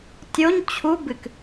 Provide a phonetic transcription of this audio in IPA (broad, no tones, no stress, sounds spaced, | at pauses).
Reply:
tʲ o ɲ t͡ɕʰ u b ɨ k